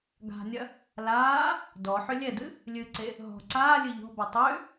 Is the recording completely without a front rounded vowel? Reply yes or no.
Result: no